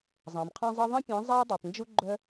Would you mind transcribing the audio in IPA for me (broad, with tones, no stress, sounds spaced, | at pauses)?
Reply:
zˤ ɑ̃˨ m qʰ ɑ̃˦ zˤ e˦ ðˤ ẽ˦ pʲ ẽ˨˦ zˤ a˦ ʊ̯ dˤ u˨ tˤ n d͡ʒ u˦ ɡ͡ǃ œ˦